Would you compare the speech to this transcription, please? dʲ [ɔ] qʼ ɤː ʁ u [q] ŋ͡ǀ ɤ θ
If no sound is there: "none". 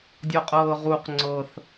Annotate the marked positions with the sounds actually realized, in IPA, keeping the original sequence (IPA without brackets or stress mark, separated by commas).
ɔ, q